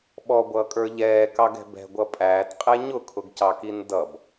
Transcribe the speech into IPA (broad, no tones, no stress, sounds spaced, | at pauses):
ɓ ɔ ɡʷ ʌː kʼ ə˞ ʎ ɛː k ɑ ɡ ɛ̤ b ɛ̤ ɡʷ ʌ pʼ æː t qʼ ɛ ɲ ʊ kʰ ʊ ɡ c ɑ k i n d ʌ b